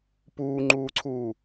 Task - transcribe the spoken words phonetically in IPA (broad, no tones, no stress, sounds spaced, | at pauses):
p uː ŋ͡ǃ uː ǀʰ uː